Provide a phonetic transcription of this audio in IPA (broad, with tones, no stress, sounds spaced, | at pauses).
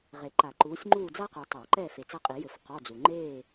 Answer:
ʁ e˨ ǃ a˨˩˦ ǃ uː˨˦ sʲ ŋ͡ǃ uː˦˨ d͡z a˥ q ɛ˨ tˤ a˨˩˦ ǃ ɛ˦˨ f e˨ t͡s ɐ˦˨ qʼ i˨˩˦ j ɘ˨˩˦ f q ɔ˧˥˧ d͡z u˨ ŋ͡ǃ eː˦˨